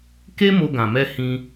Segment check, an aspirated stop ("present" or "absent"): absent